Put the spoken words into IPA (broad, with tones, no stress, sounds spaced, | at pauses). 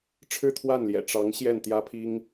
ʈ͡ʂʰ ɻ̩˥˧ t̪ʰ w a˥˩ n l j ɛ̰˨˩ ʈ͡ʂ ɑ˧˥ ŋ ɕ j ɛ˥˩ n t̪ j ä˥ pʰ i˥ ŋ